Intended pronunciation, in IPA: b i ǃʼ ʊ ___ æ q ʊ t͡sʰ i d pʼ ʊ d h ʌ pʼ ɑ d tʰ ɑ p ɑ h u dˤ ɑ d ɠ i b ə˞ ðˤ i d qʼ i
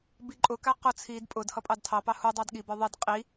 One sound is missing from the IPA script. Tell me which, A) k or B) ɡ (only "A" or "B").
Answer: A